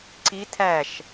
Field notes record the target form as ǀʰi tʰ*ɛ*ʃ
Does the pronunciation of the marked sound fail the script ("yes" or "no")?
yes